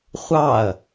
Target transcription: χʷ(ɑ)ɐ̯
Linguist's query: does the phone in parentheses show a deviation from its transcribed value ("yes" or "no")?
no